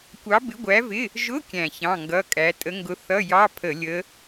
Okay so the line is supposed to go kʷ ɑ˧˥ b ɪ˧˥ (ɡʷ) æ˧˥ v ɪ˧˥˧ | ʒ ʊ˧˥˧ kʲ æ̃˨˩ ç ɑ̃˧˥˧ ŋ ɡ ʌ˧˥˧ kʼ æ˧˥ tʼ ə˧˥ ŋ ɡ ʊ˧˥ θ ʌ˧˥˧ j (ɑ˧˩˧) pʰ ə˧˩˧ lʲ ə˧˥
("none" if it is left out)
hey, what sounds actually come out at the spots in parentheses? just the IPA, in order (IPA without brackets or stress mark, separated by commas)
ɡʷ, ɑ˧˥˧